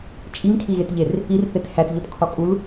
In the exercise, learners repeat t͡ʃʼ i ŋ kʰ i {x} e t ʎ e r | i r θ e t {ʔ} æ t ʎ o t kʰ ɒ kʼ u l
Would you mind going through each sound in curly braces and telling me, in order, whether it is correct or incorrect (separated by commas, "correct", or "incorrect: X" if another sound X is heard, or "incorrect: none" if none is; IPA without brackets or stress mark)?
incorrect: ɣ, incorrect: h